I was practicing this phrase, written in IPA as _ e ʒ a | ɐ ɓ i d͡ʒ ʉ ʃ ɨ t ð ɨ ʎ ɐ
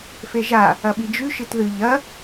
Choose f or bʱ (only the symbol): f